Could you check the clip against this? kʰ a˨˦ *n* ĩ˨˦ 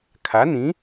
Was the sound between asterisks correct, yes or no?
yes